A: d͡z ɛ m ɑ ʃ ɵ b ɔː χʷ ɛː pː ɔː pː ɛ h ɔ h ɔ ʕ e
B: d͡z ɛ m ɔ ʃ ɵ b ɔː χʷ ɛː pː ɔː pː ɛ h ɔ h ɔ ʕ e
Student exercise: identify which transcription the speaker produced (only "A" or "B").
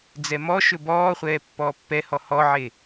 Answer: B